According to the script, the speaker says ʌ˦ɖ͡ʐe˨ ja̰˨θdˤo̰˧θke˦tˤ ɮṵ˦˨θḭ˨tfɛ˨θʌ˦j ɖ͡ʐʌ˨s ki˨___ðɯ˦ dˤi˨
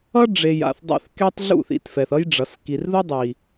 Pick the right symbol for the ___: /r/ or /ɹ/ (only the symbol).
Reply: r